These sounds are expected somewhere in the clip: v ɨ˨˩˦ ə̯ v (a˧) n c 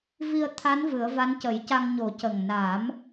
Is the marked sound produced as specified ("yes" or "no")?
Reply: no